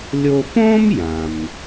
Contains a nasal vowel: yes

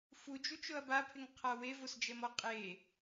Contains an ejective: yes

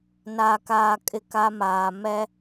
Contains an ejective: yes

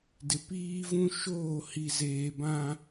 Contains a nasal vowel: yes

